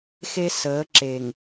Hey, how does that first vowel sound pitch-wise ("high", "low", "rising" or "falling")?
high